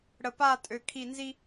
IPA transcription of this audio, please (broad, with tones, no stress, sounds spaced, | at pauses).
ɽ ə˨ p a˦˨ tʼ ø˨ kʰ i˦˨ n z i˦